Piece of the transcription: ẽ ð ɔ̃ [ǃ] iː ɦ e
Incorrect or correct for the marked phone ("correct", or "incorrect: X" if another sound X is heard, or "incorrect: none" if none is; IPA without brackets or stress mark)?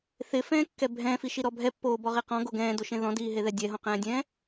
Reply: incorrect: d